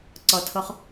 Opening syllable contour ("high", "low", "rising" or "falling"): low